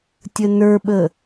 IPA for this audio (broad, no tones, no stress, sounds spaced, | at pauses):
tʲ ə n ə˞ ɓ ə